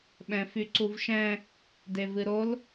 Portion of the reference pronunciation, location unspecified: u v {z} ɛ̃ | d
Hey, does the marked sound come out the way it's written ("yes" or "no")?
no